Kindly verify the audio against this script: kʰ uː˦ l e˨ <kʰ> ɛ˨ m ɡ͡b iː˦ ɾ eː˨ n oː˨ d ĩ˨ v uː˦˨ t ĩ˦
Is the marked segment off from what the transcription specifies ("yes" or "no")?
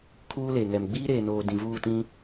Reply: yes